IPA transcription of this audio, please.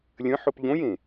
lʲə̃ħʊp ʎõjẽ

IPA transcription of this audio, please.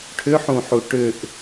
ʈʰʏħũħu ʈʏʔ

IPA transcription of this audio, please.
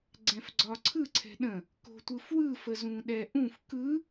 ɡ͡ǀɛ̃fɡ͡ǀɒǀʰɯ ǀʰɛ̤ɗə̃ | ko̤tʷɯfwɯ fəzũɗɛʔũf kɯ

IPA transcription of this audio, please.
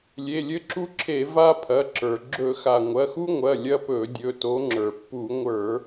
lʲe˩˧˩lʲɘ˦ǁu˦ǁʰe˧˩˧ va˦pʰɐ˩˧˩ǁə˞˩ ɡ͡ǁɵ˧˩˧xa˩ ŋʷɐ˩˧˩xu˦ŋʷɐ˩˧˩ lʲɐ˦pɵ˧˩˧dʲɵ˩˧˩to˨˦ ŋ͡ǁə˞˩pːu˧˩˧ŋʷə˞˧˩˧

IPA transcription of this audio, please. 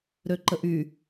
ɾøǃəʔy

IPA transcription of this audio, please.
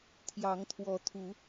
t̪ʰjɑ˨˦ŋt̪ʰwɔ˨˦ t̪ʰu˨˦

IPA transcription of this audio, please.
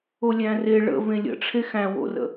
olʲæ̃re ɭə̰ vẽlʲə̰ʈ͡ʂʰe xæ̃wo̰rə̰

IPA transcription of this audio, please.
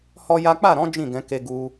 hɔ˦ja˦ k͡pa˦˨ɾɔ̃˨˦ d͡ʒĩ˦˨ɡɛ̃˨˦ke˧ ɡu˧

